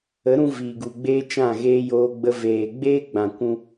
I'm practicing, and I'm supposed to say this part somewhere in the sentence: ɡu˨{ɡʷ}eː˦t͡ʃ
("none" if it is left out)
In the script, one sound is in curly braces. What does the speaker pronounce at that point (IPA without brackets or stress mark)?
ɡ͡b